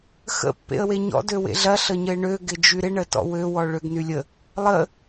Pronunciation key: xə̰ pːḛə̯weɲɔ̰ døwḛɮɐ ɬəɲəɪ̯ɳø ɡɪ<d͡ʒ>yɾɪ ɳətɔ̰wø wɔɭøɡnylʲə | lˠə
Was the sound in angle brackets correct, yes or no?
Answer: yes